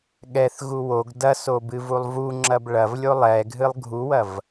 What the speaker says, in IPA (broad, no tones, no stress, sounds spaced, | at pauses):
ɠ ɛ θ ɣ u w o ɡ d ɐ s o b ɨ v u lˠ v u ŋ͡ǁ ɐ b ɭ ɐ v lʲ o lˠ ɛ ɡʱ ɨ lˠ ɡʱ u w ɐ v